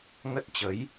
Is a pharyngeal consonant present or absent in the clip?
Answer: absent